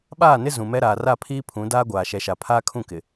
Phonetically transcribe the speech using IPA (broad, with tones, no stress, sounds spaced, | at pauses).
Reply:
ɓ aː˦˨ n ɪ˦ z ũ˨ m ɛ˦ ɾ aː˨ r a˦˨ pʰ iː˦ pʰ ũ˨˦ d aː˦ ɡʷ aː˨ ʃ ɛ˨ ʃ a˨ pʰ aː˦ kʰ ũ˦˨ k ɪ˨